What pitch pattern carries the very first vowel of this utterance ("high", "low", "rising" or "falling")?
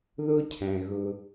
high